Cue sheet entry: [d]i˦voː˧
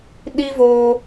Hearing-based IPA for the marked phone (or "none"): ɗ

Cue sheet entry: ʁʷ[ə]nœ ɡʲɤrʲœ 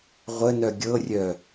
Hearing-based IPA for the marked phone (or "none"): ə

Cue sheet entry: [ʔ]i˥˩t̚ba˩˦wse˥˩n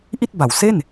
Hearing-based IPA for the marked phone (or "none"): ʔ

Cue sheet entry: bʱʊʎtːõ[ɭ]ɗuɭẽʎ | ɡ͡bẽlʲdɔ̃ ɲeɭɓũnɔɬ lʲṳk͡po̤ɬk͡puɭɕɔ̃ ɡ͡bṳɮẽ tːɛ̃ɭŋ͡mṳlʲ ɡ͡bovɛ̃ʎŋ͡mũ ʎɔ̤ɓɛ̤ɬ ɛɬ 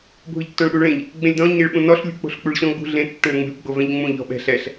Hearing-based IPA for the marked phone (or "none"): ɭ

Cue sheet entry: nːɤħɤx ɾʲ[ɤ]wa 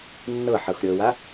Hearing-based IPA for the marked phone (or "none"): ɤ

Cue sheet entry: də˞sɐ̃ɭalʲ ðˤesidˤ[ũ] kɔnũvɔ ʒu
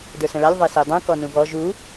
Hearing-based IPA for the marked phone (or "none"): ũ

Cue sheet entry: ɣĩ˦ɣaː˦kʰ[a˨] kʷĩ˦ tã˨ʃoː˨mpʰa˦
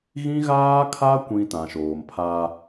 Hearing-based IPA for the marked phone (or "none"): a˦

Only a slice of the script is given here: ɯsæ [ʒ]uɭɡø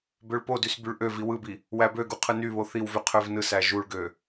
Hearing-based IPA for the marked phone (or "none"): ʒ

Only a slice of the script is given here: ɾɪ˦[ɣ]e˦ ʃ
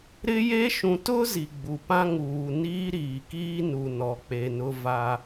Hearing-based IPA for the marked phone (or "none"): j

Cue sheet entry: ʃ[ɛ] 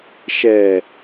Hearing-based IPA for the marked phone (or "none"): ɛ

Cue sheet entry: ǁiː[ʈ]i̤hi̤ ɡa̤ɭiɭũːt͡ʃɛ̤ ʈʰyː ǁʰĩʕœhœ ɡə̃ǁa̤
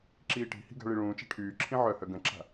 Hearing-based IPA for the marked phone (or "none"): ʈ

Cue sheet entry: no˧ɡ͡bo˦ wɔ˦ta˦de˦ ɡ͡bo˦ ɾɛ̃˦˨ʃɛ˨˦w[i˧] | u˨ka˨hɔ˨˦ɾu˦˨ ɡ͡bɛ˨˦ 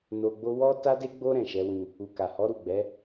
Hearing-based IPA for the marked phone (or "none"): ĩ˧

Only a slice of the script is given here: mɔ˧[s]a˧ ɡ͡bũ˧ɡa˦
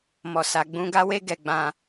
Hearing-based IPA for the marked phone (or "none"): s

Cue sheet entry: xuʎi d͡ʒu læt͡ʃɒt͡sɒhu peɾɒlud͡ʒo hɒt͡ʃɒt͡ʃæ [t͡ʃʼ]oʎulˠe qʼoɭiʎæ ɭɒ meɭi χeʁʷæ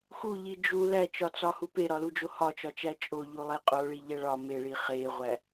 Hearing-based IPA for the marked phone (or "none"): t͡ʃʼ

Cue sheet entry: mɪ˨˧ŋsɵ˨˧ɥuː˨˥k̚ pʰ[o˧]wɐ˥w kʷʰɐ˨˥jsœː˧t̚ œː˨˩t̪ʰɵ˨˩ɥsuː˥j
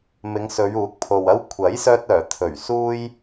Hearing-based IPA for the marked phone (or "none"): o˨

